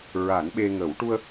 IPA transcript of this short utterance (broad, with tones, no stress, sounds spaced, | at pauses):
ɹ a˨˩˦ n ɓ e˧ ŋ ə˨˩˦ w ʈ u˧ ə̯